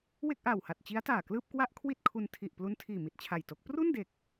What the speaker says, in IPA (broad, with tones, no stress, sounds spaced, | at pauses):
w e˥˩ k̚ ʔ aː˨˩ w h a˨˩ t̚ t͡ɕ i˦˥ a̯ t aː˨˩ k l ɯː˥˩ p̚ k w a˥˩ ʔ kʰ w i˥˩ t̚ kʰ u˧ n tʰ i˨˩ ʔ p l u˦˥ n tʰ iː˨˩ m i˨˩ t̚ t͡ɕʰ a˨˩ j t o˦˥ k̚ p r u˥˩ n d e˨˩ k̚